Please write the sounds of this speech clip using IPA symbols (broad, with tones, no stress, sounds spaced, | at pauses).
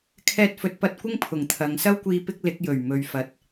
kʰ ɛː˧ t̚ f ɵ˨˥ t̚ p ɐ˧ t̚ kʷ ɪ˥ ŋ pʰ ʊ˨˩ ŋ t̪ʰ ɐ˨˧ ŋ s ɐ˥ w kʷ iː˧ p ɪ˥ k̚ l ɪ˨˥ k̚ j ɵ˨˩ ɥ m ɵ˨ ɥ f ɐ˨ t̚